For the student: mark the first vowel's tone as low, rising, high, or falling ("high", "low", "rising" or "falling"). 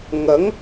rising